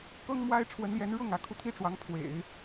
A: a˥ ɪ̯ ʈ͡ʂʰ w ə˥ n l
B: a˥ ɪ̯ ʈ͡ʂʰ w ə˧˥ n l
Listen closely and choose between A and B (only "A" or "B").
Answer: B